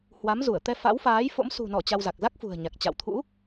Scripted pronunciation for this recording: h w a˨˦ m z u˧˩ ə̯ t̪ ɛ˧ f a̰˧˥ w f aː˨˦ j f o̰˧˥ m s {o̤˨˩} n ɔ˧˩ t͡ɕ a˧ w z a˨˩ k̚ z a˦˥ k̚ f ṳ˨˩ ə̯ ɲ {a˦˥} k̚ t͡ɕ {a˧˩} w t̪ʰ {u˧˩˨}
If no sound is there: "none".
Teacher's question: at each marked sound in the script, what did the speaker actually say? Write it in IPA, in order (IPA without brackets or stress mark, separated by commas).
ṳ˨˩, a˨˩, a̰˧˨, ṵ˧˥